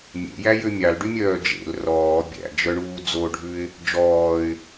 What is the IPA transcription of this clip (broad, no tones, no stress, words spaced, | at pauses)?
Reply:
mʲḛjæjø mʲɑlɖymʲœː d͡ʒḛl rɔː bʲæ̰d͡ʒœɳuː d͡zoɖʱʉɪ̯ | d͡ʒɔːɪ̯